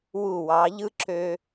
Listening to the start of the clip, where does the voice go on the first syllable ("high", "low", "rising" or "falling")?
falling